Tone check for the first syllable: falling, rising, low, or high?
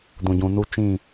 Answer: low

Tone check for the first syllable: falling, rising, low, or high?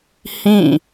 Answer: falling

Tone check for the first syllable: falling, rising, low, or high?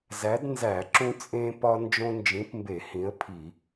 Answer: rising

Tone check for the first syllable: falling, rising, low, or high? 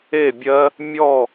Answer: falling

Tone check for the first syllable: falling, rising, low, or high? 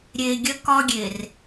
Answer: low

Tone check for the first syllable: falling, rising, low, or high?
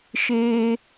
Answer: high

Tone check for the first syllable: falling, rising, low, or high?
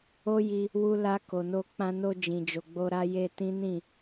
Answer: high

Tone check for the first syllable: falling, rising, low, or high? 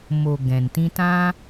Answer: low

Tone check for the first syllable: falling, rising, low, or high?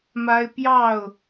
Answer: high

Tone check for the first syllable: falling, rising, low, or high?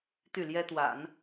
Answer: falling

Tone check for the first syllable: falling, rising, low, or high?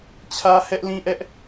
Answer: high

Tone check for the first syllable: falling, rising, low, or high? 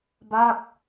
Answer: falling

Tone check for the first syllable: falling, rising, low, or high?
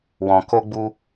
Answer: low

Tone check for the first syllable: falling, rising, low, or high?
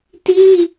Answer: high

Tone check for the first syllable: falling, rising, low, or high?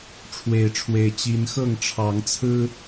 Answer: rising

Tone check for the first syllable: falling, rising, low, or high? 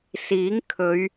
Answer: rising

